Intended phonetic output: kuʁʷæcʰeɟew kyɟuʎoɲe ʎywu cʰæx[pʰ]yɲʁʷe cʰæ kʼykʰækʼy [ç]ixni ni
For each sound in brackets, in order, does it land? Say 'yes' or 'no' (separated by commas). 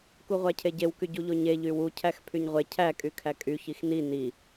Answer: yes, yes